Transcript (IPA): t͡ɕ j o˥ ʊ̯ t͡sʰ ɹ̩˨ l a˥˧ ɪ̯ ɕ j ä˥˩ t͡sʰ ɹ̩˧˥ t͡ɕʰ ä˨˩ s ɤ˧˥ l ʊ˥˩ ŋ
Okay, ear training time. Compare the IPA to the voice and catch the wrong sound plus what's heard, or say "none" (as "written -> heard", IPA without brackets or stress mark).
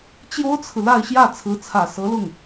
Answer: t͡ɕʰ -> t͡sʰ